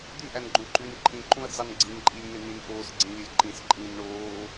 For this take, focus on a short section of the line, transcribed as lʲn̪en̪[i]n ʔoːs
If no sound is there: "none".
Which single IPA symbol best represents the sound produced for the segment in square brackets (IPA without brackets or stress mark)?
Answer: ĩ